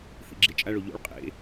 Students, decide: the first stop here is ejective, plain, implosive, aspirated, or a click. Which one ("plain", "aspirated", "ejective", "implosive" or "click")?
click